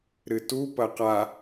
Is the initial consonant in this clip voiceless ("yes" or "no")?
no